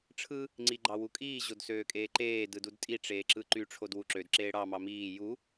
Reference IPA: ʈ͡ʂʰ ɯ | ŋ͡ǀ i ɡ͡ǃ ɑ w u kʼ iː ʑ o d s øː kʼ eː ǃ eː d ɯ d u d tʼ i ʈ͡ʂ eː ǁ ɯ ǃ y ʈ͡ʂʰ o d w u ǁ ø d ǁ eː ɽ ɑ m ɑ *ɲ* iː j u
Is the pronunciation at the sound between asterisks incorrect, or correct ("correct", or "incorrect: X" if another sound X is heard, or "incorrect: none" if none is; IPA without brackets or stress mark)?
incorrect: m